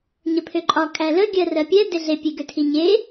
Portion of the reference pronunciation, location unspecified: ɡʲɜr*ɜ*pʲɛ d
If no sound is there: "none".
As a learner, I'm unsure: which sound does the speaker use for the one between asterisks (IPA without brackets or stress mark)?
ɜ